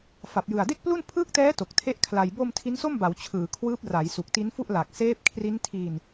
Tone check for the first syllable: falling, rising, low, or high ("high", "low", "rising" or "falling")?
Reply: low